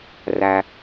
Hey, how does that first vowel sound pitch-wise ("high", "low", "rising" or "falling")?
low